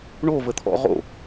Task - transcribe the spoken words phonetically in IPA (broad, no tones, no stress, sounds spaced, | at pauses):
ɳ o v ə t̪ʰ ɔ̰ ʁ o̰